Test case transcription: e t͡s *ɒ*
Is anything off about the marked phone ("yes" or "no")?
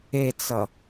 yes